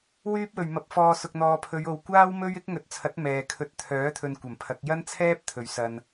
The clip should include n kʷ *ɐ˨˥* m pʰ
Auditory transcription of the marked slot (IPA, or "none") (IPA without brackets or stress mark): ɐ˨˩